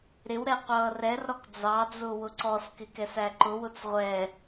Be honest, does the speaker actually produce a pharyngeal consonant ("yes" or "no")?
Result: no